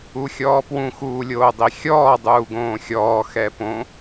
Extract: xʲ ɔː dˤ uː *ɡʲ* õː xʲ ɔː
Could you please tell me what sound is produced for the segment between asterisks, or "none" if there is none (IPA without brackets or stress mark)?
ɡ